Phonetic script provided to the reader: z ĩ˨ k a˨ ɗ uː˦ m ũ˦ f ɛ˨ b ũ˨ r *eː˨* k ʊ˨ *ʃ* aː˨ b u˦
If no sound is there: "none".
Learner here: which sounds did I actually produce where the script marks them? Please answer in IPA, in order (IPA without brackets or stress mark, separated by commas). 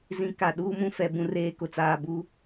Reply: eː˨, t͡s